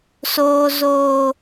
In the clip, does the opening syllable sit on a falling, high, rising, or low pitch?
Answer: low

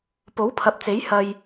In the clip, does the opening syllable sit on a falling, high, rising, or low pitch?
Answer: rising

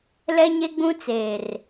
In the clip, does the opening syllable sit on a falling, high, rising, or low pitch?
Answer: high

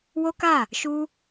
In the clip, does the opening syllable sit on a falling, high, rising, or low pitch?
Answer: high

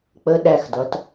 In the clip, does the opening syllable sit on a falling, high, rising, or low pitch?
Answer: high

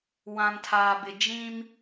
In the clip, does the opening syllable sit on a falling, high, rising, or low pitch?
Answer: low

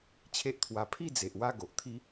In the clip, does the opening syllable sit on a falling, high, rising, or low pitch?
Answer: high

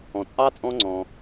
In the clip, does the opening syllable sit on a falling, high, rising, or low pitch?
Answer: low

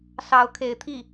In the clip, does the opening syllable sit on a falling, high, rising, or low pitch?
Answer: rising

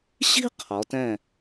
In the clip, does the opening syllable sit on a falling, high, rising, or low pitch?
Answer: high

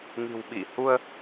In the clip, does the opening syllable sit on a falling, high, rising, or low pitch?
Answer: low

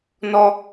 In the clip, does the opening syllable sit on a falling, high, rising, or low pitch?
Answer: high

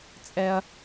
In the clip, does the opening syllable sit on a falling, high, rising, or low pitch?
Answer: high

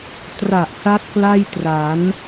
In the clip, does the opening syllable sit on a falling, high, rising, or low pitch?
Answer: low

